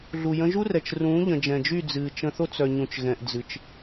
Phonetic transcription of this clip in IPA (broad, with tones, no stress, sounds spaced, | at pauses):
ɮ u˨ j ə̃˧ ʒ u˦ r ɛ˨ t͡ʃ r ũː˨˦ ʎ ə̃˨ d͡ʒ ɛ̃˨ d͡ʒ y˦˨ d͡z ɨː˨ t͡ʃ ə̃˧ θ o˦ t͡s œ˨ ɲ ũ˨ t͡ʃ ɣ ɛ̃˨ ʔ d͡z ɨ˨ t͡ʃ